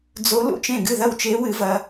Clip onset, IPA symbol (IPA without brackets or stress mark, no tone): d͡z